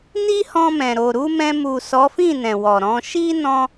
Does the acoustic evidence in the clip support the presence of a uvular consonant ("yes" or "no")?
no